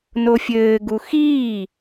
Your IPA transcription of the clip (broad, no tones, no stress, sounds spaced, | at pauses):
n o fʲ ɘː ɡ u x iː